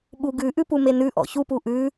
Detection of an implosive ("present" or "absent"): present